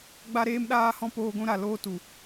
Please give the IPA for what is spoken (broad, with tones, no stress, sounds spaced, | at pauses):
ɡ͡b a˦ ɾ eː˦ m ɗ aː˦ h ɔ̃˦ p oː˧ ɡʷ ũ˧ ɾ a˨ l oː˦ t u˨